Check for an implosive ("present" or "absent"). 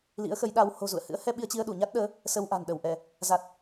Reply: present